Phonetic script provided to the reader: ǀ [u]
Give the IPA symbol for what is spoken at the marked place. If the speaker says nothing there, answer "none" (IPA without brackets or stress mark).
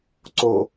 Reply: o